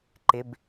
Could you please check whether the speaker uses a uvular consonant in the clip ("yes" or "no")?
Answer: no